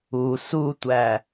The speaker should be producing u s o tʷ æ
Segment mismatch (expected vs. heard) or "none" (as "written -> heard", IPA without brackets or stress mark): o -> u